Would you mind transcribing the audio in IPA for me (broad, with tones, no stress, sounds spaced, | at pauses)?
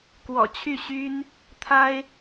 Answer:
k w ɔ̰˨˩ t͡ɕʰ y˥˩ ɕ y˥ n | t̪ʰ a˥ ɪ̯